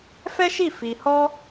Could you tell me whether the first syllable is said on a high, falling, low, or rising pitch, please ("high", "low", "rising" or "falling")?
high